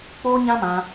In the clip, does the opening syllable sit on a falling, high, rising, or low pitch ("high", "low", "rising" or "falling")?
high